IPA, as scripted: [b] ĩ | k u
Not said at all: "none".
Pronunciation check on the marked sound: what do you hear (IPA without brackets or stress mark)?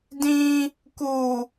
d